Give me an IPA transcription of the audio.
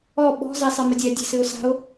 ɔ ɓ ɔ̤ z e sˤ ɛ m ə dʲ ɛ dʲ e̤ s ɨ ʊ̯ s a̤ ʊ̯

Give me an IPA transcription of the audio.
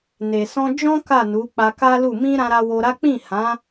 n e˨ s ɔ̃˧ d͡ʒ ɔ̃˦ k a˦˨ n u˨˦ k͡p a˧ k a˦ l u˦˨ m ĩ˧ ɾ ã˧ ɾ a˧ w o˧ ɾ a˦ k͡p ĩ˦˨ h ã˨˦

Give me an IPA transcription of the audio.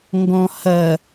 ŋ ɡ ɔ̃ h ɐ

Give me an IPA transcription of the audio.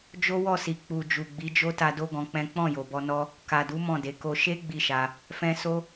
d͡ʒ o˦ w ɔ˦˨ s i˨ k͡p u˨ d͡ʒ u˨ ɡ͡b i˨˦ d͡ʒ o˦ t a˧ d o˦ ɡ ɔ̃˧ k͡p ɛ̃˦ k͡p ɔ̃˦˨ j o˨ b ɔ˧ n ɔ˦ | k a˨ d u˨˦ m ɔ̃˦˨ d e˨˦ k o˦ ʃ e˦ ɡ͡b i˦˨ ʃ a˧ | f ɛ̃˧ s o˦

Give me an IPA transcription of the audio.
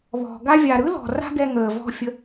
β ɔ̤˨ ɡ a˦ vʲ a˨ ɾ ɯ˦ l ɔ̤˨ r a̤˦ ɡ ɛ˧ ŋ əː˨ v ɔ̤˧ fʲ ə˧

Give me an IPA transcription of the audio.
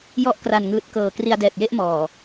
j ɔ˦˥ ʔ k r a˨˩ n ŋ ɯː˨˩ t̚ k ɤː˨˩ k r i˧ a̯ d ɛː˨˩ t̚ j e˥˩ ʔ m ɔː˨˩

